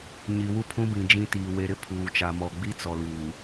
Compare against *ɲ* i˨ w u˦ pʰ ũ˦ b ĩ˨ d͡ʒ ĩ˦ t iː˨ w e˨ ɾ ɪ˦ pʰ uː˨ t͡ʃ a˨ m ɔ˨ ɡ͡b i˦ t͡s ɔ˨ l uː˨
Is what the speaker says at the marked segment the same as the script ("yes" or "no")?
yes